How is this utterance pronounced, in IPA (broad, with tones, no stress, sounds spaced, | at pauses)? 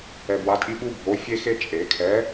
ɛ˨ b w a˨˥ tʼ i˥ ɓ u˥ bʱ o˨˥ fʲ e˥ x e˥ t͡ʃʼ e˨˩˦ kʰ ɛ˨˥